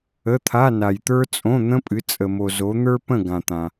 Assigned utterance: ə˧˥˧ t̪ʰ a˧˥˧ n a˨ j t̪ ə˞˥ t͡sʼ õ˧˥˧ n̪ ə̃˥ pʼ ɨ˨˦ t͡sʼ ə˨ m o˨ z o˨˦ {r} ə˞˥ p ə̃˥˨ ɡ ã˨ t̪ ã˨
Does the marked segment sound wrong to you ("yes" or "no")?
yes